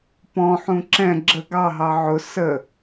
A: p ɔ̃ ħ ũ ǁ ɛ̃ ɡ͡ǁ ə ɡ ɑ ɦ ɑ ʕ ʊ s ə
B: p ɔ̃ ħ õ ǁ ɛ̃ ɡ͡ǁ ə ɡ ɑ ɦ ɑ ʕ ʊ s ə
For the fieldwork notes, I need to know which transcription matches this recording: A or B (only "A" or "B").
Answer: A